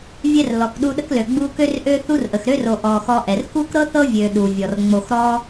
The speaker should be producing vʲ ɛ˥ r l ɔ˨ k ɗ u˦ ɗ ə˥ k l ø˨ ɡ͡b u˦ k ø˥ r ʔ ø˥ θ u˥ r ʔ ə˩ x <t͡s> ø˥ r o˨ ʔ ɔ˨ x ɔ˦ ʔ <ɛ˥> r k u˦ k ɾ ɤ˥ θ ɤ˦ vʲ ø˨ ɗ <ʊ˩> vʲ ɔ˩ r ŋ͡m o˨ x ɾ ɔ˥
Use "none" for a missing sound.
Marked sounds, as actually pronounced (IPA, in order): ɾ, ɛ˩, u˩

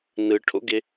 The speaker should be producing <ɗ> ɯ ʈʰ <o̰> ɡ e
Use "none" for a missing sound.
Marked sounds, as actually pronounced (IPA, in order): n, o̰

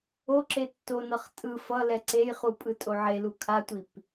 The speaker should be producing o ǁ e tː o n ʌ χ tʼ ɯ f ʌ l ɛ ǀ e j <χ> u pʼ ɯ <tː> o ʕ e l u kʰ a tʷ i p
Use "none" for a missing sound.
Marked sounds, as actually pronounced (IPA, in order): χ, tʼ

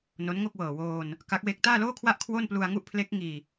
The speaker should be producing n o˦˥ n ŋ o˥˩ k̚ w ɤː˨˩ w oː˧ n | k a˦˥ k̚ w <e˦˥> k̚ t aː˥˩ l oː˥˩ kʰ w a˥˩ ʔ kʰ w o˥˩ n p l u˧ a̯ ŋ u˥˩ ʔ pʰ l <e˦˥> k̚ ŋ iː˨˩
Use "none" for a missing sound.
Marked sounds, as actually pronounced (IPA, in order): e˦˥, e˦˥

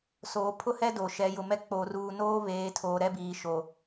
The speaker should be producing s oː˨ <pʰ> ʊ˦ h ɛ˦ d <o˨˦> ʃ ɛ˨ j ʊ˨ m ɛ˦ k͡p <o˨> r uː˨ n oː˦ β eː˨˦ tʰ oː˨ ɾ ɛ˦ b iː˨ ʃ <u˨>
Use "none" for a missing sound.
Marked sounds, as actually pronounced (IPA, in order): pʰ, o˨, o˨, o˨

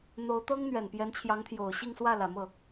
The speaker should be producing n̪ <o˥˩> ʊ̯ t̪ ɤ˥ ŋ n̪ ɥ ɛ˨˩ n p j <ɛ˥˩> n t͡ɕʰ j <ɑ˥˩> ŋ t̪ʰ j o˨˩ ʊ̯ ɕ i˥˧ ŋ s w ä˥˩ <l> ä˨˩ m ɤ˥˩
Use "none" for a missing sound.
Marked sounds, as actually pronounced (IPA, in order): o˧˥, ɛ˧˥, ɑ˧˥, l

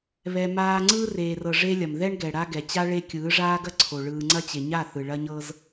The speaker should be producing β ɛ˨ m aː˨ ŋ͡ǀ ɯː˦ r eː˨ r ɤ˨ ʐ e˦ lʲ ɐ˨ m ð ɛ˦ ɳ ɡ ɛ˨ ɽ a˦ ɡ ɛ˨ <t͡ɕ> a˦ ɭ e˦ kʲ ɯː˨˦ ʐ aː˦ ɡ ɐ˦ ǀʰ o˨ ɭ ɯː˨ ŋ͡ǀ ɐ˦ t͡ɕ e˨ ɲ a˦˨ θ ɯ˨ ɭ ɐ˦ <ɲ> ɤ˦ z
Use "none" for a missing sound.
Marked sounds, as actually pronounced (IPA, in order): t͡ɕ, ɲ

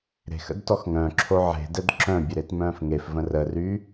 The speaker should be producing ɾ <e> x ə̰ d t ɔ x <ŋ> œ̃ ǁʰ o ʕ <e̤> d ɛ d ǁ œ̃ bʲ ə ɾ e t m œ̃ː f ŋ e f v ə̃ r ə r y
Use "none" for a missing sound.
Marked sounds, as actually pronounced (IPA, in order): e̤, ŋ, e̤

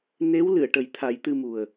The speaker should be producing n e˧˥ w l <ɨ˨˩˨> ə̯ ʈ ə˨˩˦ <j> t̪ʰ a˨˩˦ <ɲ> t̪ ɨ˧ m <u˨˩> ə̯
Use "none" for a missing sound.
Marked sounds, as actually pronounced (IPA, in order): ɨ˨˩˨, j, j, u˨˩

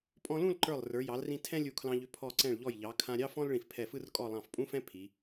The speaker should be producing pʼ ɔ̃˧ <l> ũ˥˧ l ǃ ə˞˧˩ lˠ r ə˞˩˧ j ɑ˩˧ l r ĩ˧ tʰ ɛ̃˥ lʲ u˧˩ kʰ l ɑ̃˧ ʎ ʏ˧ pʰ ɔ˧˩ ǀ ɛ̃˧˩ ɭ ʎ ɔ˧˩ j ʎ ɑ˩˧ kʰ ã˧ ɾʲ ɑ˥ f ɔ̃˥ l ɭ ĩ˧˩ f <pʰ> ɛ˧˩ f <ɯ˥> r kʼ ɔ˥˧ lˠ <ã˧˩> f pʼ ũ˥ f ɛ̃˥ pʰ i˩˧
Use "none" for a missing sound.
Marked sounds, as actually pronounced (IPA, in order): l, pʰ, ɯ˥, ɑ̃˧˩

